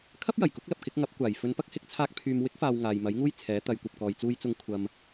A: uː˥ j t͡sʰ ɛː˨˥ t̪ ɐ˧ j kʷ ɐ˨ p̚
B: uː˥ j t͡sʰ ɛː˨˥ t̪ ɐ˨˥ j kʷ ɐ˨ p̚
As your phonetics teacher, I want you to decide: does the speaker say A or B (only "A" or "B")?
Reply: A